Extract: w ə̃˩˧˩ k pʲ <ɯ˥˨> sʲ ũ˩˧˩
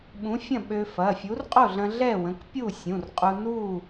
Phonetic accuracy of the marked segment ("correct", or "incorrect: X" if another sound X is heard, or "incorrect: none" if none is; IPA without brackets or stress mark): incorrect: u˥˨